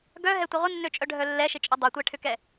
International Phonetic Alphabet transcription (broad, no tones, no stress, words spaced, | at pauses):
ɡœɦɛtʷɪ ʁʷɪnːøt͡ʃʼœɖʱœ lːɛʃɪt͡ʃʼʏ dˤɛtʷɛʈʰʏkɛ